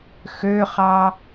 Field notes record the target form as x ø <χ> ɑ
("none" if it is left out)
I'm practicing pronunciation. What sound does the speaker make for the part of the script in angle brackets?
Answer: χ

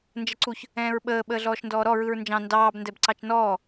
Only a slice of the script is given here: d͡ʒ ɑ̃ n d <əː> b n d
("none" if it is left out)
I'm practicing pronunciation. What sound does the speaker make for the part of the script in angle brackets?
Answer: ɑː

